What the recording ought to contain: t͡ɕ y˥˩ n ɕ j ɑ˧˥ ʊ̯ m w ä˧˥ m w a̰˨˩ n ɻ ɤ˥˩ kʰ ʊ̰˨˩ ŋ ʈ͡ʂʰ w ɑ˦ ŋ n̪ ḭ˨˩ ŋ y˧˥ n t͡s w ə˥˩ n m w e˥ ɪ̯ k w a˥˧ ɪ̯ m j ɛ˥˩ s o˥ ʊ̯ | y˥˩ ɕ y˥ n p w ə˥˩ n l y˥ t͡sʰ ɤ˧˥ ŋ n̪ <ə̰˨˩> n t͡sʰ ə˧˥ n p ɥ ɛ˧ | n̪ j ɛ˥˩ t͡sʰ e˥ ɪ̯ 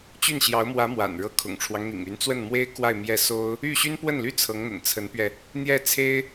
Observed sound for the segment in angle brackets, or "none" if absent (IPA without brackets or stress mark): ə̰˨˩